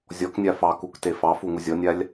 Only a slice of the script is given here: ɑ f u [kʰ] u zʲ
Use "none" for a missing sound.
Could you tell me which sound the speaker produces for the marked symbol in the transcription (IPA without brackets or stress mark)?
ŋ